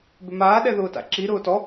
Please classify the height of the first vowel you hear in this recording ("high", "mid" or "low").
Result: high